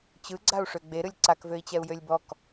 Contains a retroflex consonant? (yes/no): yes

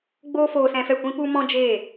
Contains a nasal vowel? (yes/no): yes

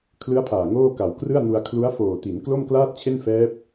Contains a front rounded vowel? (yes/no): no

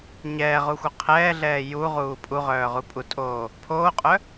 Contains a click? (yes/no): no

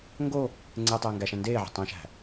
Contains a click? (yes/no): yes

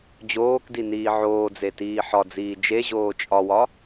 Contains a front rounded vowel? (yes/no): no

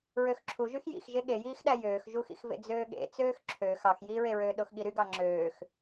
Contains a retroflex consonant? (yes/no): no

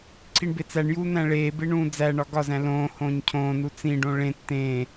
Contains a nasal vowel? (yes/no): yes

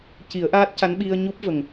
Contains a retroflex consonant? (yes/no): no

